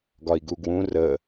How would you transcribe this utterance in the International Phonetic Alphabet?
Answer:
ɡɒi̯ɡuɡwũ rə

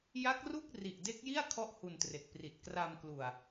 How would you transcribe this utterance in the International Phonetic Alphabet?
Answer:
ja˦˥k̚ru˥˩k̚ ri˨˩ʔde˦˥k̚ji˥˩a̯ kʰɔ˥˩ʔhu˧ntre˨˩k̚pri˨˩t̚ kra˧mklu˨˩a̯

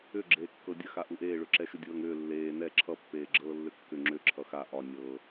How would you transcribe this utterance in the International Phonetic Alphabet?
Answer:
ʏ ɡ͡ǁeːkːɤdʲəxa ʔuʔeːɭʏ ǁɛʃʏdʲɤːŋʏː lːeː nɛ ǁʰʌpːeː ɡ͡ǁɤːlːʏkːʏ ŋ͡ǁʏ ǁʰʌxa ʔɒnʲɤː

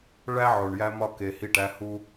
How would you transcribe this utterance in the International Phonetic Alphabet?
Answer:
ɭæ˦ ʕo˨ɳjæ˦mɒ˦ ke˧hi˦˨ʈæ˦ hu˦

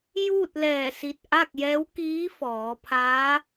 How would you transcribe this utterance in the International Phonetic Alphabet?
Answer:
juː˥˨t̚lɛː˧˩si˧˩t̚ ʔa˥˨k̚jɛː˧˥wkiː˧˥ fɔː˩˧pʰaː˧˥

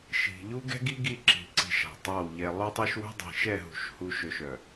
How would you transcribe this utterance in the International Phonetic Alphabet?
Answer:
ʃi̤˨ ʎu˦ɡɛ̤˦ɡi˦ ɡi˦˨ǁi̤˨ǀi̤˨ʃ a̤˨tˤa˦˨w ʎɛ˨ lˠœ˦tˤɵ˦ʃwṳ˦dˤi̤˨ ʃɛ˦˨ɦṳ˨ʃhu˨ ʃɵ˨ʃœ˨

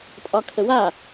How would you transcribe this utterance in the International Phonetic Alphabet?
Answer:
tʼɒkʰəwa

